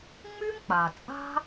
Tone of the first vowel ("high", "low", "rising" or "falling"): high